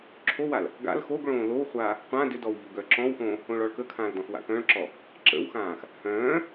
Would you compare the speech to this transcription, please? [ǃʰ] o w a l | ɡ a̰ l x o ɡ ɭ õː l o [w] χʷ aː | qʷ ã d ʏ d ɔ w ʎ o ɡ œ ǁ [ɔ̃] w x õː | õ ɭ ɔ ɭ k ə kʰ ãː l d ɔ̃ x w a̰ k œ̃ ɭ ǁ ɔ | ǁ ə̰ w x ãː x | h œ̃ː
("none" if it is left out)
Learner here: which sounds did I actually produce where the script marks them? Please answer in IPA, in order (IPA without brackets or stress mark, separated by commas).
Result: ǁʰ, w, ɔ̃